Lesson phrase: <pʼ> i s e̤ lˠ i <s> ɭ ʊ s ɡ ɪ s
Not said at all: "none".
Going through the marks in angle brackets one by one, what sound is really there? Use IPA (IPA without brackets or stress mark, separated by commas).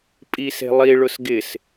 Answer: pʼ, none